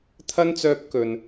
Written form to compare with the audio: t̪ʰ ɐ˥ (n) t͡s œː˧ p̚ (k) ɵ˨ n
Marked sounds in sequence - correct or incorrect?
correct, correct

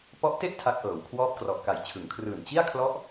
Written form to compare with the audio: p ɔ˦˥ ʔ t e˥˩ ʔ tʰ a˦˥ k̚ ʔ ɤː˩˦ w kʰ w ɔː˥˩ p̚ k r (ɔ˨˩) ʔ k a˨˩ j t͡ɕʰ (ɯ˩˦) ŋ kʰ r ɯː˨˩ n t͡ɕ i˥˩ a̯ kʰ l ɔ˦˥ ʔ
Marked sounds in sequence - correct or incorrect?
correct, correct

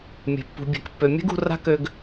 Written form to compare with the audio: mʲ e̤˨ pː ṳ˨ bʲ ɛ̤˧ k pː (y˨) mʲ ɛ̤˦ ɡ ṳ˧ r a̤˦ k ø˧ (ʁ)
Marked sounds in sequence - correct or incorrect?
incorrect, incorrect

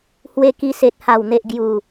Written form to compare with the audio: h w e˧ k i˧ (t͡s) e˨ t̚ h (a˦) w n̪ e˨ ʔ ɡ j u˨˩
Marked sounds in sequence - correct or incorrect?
incorrect, incorrect

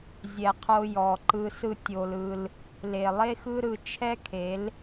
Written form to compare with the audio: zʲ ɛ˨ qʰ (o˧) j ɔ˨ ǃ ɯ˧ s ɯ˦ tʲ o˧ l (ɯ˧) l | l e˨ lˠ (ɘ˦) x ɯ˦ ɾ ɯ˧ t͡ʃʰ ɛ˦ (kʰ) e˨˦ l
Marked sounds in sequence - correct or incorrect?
correct, correct, incorrect, correct

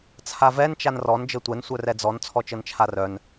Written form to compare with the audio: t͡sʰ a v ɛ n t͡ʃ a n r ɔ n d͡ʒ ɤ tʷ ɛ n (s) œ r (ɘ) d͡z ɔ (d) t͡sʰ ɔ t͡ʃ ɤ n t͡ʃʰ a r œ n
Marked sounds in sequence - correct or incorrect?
incorrect, incorrect, incorrect

